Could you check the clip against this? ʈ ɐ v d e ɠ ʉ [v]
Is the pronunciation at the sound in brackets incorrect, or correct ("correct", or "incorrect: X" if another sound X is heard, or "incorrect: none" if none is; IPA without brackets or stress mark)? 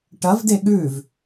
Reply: correct